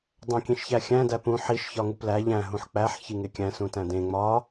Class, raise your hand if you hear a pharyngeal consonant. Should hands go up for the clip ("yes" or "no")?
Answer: yes